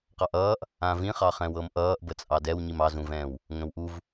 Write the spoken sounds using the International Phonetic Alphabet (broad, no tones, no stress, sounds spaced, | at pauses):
q ɑ ʔ ʌː ʔ | ã v ĩ χ ɑ χ ɛ̃ w ɤ m ʔ ʌː ʔ b ə t͡sʼ ɑ d ɛ w ɲ i m ɑ z ũ v ɛ̃ː w | ŋ ə̃ w ʔ u v